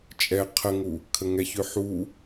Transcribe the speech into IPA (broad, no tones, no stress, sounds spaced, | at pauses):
t͡ʃʼ ɛ qʰ ə ŋ u | kʰ ə ŋ ɛ ç ʉ ħ u